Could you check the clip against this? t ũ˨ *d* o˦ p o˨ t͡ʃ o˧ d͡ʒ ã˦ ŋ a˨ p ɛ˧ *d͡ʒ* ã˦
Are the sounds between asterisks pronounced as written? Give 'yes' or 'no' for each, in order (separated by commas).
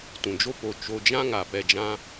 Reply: no, yes